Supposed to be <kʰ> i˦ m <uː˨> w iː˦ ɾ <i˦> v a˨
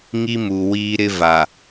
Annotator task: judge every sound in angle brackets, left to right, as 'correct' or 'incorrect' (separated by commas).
incorrect, incorrect, incorrect